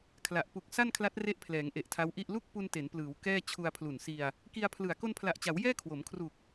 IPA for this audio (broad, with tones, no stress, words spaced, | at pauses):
kʰla˨˩ʔ pu˨˩k̚ sa˥˩nkʰla˦˥t̚ re˦˥ʔpʰlɛː˩˦ŋ ʔe˨˩ʔtʰa˦˥wʔi˥˩ʔ lu˥˩k̚ pu˧nte˩˦nplɯː˩˦w kɛː˥˩ t͡ɕʰu˧a̯pʰlu˨˩nsi˧a̯ | ki˧a̯pʰlɯ˨˩a̯ ko˧npʰla˨˩ʔt͡ɕa˩˦w jɛː˥˩kʰwo˩˦mkʰru˨˩k̚